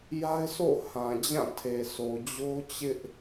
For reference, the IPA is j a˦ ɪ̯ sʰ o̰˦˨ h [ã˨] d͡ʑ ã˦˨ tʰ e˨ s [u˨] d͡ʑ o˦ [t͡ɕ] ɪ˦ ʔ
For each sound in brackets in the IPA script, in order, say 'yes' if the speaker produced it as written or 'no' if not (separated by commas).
yes, no, yes